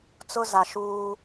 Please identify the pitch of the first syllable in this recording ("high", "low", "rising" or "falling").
high